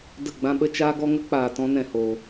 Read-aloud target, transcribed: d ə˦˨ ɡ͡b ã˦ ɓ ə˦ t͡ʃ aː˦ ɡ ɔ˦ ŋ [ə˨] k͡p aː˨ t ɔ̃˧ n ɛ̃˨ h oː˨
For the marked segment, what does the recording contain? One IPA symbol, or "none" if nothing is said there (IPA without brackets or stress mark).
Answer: ə˦